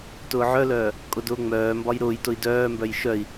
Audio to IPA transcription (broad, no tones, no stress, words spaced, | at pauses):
tʊːʕœlœː | kʼʊdʊːŋ͡mœːmbɒj ɾʊːjtʊi̯ dœːmbœj ʃœi̯